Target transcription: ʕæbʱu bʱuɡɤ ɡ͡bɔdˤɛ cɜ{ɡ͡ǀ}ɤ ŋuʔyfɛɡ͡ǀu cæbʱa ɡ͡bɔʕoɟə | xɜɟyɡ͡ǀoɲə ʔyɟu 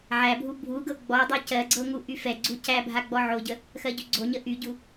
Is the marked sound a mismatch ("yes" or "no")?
no